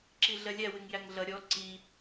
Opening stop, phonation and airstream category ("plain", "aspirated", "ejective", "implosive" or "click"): click